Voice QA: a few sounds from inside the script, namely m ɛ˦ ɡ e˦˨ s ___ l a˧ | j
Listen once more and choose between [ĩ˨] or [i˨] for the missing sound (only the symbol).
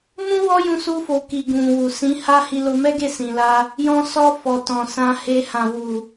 ĩ˨